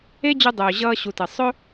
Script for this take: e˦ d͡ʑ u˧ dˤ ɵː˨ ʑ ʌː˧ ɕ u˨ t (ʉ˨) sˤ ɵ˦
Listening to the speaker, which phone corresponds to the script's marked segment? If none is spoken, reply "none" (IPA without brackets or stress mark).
ɘ˨